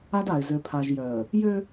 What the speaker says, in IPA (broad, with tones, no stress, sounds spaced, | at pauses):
a˦ d a˨ ɪ̯ z ø˨ pʰ a˨ ʒ j œ˨ ə̯ | j ø˦